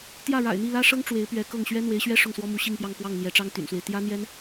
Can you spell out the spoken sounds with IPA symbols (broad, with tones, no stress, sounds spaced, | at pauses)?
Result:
t̪ j ä˥˩ ɻ a̰˨˩ ɪ̯ n̪ i˥˩ l ä˥ ʂ ɤ˥ ŋ ʈ͡ʂ w e˧˥ ɪ̯ p ɥ ɛ˧˥ k ɤ˥˩ ŋ ɕ ɥ ɛ˥ n̪ w e˧˥ ɪ̯ ɕ ɥ ɛ˥ ʂ ʊ˥˩ ŋ s w ɔ˥ m u˧˥ ɕ i˥˧ ŋ p j ɑ˥˧ ŋ k w ɑ˥˩ ŋ n̪ j ɛ˧˥ ʈ͡ʂ ɑ˥ ŋ t̪ y̰˨˩ n s w e˦ ɪ̯ t̪ j ä˥ n̪ j ɛ˥ n